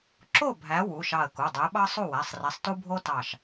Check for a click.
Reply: present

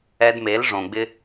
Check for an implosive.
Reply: absent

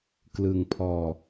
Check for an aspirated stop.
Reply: present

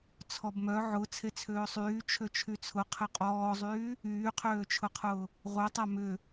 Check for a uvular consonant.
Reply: present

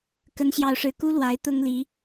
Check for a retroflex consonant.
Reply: present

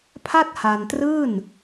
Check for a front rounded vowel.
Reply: absent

